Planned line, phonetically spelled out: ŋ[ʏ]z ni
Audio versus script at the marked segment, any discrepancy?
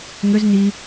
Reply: no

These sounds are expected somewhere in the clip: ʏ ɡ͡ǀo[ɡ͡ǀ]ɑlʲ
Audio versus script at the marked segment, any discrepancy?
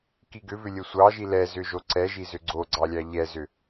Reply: no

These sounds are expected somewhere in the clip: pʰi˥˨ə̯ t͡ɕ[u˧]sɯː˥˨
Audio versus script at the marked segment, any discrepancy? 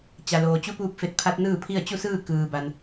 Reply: yes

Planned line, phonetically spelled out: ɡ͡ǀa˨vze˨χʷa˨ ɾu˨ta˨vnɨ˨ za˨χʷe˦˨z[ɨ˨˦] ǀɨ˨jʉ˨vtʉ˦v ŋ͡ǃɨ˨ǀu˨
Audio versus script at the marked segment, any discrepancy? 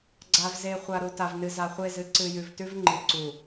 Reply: no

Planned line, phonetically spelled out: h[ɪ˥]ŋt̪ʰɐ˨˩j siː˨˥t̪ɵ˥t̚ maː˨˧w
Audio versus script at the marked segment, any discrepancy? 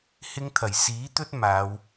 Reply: no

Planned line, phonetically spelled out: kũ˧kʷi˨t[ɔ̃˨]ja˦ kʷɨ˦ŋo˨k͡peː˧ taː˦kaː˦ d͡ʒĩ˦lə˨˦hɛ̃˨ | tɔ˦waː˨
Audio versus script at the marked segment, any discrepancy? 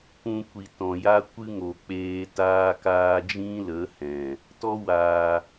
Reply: no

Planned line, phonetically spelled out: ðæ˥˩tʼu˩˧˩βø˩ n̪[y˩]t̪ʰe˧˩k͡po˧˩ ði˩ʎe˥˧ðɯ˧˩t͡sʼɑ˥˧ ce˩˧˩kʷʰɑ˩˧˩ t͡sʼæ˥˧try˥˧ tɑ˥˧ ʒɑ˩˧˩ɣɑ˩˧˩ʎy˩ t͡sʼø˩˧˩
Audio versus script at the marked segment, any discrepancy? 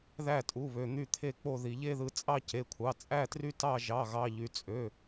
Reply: yes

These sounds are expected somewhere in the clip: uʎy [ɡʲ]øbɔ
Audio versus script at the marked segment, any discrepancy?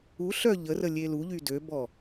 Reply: yes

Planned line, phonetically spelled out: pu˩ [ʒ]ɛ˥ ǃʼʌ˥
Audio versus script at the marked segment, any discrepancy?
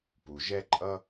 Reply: no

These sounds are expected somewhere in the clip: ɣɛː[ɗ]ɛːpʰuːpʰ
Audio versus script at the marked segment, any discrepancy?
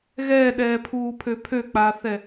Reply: no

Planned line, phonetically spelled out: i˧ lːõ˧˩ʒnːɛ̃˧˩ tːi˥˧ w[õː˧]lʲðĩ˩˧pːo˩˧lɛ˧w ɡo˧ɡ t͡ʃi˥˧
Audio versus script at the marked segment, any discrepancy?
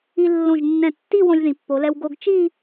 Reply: yes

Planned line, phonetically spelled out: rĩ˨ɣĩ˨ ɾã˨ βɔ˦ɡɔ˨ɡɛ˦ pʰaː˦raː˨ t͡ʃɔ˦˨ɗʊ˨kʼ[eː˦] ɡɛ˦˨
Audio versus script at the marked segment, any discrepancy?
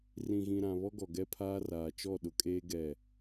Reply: no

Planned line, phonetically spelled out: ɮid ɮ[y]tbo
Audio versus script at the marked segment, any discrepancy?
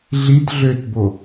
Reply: yes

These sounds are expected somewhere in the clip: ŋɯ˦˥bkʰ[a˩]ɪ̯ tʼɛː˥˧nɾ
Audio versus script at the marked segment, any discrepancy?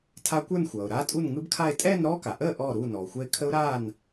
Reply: yes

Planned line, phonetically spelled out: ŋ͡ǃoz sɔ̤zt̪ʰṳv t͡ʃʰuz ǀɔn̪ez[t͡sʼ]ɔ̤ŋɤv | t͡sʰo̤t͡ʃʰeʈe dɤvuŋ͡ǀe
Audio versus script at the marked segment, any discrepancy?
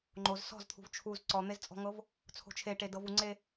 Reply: no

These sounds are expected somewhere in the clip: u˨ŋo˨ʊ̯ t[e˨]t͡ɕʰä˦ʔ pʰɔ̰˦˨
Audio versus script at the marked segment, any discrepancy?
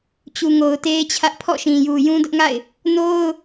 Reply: yes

